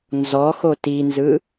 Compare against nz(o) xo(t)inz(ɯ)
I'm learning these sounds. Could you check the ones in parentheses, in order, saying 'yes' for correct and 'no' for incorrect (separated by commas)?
no, yes, yes